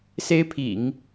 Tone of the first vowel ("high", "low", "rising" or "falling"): high